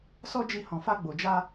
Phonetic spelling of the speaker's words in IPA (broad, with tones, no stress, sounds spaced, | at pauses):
s ɔ˦ d͡ʒ i˧ h ɔ̃˨ f a˧ ɡ͡b o˨ d͡ʒ a˧